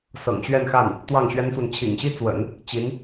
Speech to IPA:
s ɤ̰˨˩ ŋ ɕ ɥ ɛ˥˧ n x a˥˩ n | t̪ w ɑ˥˩ ŋ ɕ ɥ ɛ˥ n s w ə˨ n t͡ɕʰ ḭ˨˩ ŋ ɕ i˥ t͡s w ə̰˨˩˦ n | t͡ɕ i˧˥ n

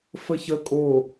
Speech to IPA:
f ə ç ə kʼ o

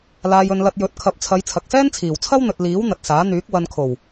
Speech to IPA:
l aː˨ j ɵ˨ n l ɐ˧ t̚ j ɵ˨˥ t̚ kʰ ɐ˨˥ p̚ t͡sʰ ɐ˨˧ j t͡sʰ ɐ˨ k̚ s ɛː˥ n t͡sʰ iː˨˩ w t͡sʰ ɐ˥ w n̪ ɵ˨ t̚ l iː˨˥ w n̪ ɐ˨ t̚ s aː˨˥ n̪ yː˨˥ k̚ w ɐ˨ n kʰ o˨˩ w

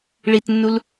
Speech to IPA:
ɭ i t nː u l

